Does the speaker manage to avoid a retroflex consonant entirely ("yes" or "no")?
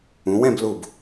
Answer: yes